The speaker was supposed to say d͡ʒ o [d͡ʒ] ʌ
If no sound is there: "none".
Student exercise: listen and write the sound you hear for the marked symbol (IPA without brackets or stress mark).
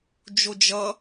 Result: d͡ʒ